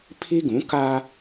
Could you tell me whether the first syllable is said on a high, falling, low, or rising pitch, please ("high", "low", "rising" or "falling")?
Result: high